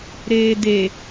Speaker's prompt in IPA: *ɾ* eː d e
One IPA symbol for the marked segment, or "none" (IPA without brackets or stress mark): ɾ